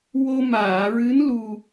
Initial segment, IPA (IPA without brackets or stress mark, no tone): w